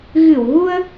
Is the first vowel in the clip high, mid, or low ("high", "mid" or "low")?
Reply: high